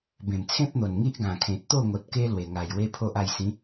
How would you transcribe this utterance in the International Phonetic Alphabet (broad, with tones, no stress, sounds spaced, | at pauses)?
b ẽ˨˩ m t͡sʰ ẽ˦ p̚ n̪ o˨˩ n ŋ i˦ ʔ ɡ ã˨˩ kʰ ẽ˨ t̚ t̪ o˥˧ ŋ o˨ t̚ k e˦ l w e˨˩ ŋ a˨˩ j w e˦ pʰ o˦ ʔ a˧ j s ĩ˨˦